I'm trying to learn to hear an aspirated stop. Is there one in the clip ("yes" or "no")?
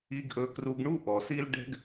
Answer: no